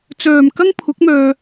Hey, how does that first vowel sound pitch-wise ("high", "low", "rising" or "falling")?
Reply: low